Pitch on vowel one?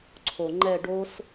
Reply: low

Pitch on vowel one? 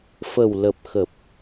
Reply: low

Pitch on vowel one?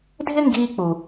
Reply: high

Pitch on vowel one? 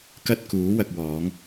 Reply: high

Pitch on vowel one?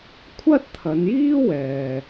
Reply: high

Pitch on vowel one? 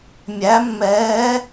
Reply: rising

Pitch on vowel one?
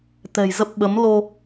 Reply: low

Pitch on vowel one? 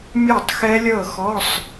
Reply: falling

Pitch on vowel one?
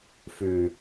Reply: low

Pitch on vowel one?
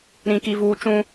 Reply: high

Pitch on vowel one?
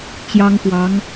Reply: high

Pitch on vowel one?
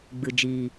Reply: low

